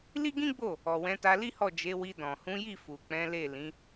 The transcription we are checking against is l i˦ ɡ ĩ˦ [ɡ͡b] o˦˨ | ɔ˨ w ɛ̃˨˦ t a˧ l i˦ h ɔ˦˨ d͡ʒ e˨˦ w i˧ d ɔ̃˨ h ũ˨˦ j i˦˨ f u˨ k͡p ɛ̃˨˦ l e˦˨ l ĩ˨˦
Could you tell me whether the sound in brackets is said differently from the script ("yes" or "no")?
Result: no